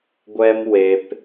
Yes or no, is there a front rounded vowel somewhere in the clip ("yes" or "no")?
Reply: no